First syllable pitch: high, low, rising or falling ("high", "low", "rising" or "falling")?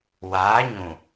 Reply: rising